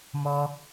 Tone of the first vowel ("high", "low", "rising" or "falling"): high